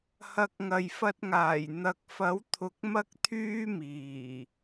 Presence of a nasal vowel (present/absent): absent